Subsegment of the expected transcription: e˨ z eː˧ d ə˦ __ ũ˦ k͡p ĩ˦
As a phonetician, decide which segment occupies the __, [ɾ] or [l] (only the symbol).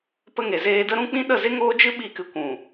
ɾ